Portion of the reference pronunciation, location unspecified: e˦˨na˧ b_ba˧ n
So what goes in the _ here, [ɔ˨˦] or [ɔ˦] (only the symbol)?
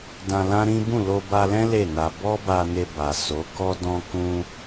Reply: ɔ˦